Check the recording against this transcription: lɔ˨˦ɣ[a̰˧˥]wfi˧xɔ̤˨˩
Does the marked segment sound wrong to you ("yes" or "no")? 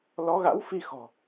no